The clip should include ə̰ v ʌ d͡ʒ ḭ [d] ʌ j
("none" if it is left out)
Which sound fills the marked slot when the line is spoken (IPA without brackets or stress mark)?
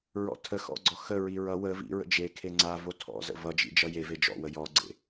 d͡ʒ